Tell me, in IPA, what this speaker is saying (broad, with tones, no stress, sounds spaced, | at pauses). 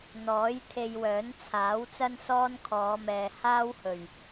n̪ ɔː˨˥ j t̪ʰ e˧ j w œː˨˥ n t͡sʰ aː˨˥ w t͡s ɐ˥ n s ɔː˥ n kʰ ɔː˨˧ m ɛː˨ h aː˥ w h ɵ˨˩ ɥ